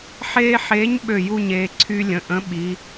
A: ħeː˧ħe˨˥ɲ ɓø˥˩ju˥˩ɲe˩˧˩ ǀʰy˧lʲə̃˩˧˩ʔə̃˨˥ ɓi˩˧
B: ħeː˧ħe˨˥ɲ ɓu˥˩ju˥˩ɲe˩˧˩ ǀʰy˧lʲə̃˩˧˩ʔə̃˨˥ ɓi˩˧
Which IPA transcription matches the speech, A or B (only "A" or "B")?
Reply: A